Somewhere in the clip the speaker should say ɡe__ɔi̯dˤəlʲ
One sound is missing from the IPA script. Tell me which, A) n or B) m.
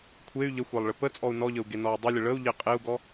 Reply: A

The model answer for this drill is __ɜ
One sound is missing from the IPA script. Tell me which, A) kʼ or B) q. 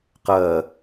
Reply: B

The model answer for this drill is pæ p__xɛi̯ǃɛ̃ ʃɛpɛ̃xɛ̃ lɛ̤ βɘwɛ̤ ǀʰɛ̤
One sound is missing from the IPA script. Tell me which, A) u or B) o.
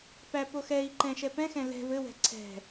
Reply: B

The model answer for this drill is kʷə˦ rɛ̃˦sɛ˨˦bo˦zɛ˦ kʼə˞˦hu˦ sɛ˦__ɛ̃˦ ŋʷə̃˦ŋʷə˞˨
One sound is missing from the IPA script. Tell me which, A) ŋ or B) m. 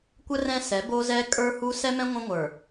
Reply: B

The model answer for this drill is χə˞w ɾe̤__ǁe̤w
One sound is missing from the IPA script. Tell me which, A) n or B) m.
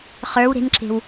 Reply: A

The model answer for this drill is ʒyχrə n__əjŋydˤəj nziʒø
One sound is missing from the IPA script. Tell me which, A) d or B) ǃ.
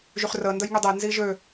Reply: A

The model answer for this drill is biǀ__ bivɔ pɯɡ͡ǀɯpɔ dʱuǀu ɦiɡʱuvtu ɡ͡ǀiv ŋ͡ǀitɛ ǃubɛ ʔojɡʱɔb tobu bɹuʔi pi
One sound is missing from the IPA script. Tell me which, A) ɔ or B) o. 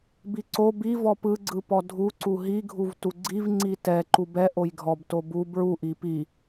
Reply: B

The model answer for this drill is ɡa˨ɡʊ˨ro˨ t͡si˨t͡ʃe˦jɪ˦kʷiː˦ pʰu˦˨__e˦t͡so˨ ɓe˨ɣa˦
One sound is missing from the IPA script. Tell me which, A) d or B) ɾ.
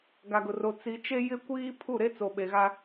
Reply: B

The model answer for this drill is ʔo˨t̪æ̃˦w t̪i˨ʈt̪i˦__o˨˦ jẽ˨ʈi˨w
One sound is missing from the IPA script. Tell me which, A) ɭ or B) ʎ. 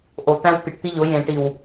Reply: B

